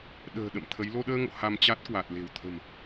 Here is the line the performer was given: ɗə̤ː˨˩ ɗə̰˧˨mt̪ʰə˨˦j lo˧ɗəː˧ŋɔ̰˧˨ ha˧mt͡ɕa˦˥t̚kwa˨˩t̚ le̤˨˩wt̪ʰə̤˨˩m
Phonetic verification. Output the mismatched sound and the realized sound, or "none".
ɔ̰˧˨ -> o̰˧˨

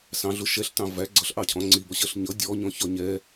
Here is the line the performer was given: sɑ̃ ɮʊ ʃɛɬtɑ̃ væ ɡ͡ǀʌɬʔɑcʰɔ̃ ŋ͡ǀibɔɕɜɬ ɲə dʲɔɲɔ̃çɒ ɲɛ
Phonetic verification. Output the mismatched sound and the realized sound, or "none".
ə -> ʌ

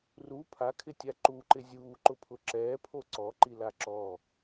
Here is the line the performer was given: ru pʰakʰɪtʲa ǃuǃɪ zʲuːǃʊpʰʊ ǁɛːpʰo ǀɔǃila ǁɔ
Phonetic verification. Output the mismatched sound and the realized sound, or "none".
none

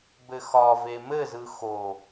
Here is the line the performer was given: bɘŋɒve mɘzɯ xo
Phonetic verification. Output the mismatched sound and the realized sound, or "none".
ŋ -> x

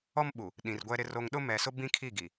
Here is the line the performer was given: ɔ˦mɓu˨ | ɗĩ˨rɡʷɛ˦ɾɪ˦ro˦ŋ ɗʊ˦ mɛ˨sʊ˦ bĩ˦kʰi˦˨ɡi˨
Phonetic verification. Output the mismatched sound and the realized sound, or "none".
none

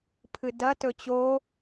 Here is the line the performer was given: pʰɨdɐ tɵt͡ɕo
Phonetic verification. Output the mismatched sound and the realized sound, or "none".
none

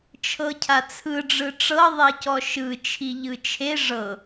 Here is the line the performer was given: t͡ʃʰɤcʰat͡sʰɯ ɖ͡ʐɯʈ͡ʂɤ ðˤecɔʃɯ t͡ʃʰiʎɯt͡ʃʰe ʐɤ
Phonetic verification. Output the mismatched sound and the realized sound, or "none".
none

